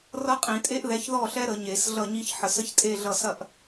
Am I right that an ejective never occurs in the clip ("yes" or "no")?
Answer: no